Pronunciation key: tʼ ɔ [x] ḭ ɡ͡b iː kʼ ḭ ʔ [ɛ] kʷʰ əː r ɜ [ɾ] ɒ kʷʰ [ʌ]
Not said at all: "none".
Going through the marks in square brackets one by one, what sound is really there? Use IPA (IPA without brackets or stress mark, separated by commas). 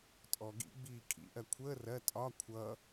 ɡ, ɜ, tʼ, ʌ